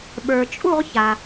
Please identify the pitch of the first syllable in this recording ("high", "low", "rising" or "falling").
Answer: low